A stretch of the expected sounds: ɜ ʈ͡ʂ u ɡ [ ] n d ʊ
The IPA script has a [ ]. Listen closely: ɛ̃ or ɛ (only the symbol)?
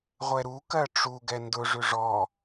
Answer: ɛ